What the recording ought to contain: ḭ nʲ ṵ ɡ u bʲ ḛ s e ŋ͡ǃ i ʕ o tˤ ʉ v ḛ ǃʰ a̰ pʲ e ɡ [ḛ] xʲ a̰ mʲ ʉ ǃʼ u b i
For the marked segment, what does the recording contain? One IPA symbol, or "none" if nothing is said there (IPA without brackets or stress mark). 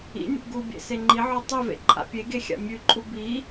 e